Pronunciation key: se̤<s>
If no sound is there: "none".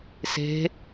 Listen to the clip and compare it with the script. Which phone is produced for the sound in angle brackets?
none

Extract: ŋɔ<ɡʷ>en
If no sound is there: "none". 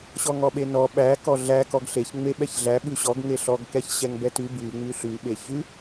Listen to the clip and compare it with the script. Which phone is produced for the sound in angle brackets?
ɓ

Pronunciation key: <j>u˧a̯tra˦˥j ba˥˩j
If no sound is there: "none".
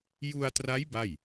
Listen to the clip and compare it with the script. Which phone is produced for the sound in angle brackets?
j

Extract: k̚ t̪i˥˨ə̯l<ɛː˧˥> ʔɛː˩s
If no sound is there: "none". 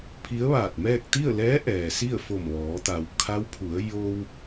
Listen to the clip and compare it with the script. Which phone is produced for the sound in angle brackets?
ɛː˧˥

